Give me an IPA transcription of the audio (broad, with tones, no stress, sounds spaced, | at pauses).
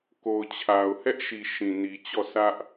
k o˨ ʊ̯ t͡ɕʰ a˨ ʊ̯ h ɛ˦ ʔ ʃ i˨ ʃ ĩ˨ n i˨ t͡ɕ ɔ˦˨ sʰ ä˦ ʔ